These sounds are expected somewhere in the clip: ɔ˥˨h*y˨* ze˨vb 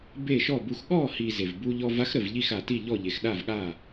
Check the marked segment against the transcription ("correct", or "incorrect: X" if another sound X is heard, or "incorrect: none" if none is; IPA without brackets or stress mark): incorrect: i˨